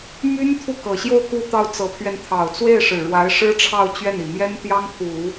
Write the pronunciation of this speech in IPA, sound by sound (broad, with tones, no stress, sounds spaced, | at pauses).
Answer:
m y˥ n t̪ʰ u˥˩ k ɤ˨˩ ɕ j o˥˧ ʊ̯ k u˥˧ t̪ ɑ˥˩ ʊ̯ t͡s ɤ˧˥ pʰ ɥ ɛ˧ n t̪ʰ ɑ˨˩ ʊ̯ t͡s w e˥˩ ɪ̯ ʂ ɻ̩˨˩ ɻ w a˧˥ ɪ̯ ʂ ɻ̩˥ ʈ͡ʂʰ ɑ˥˧ ʊ̯ t͡ɕ ɥ ɛ˥˩ n i˨˩ m j ɛ˥ n t̪ j ɑ˥ ŋ pʰ u˨˩˦